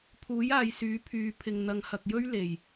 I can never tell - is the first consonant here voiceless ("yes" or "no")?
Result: yes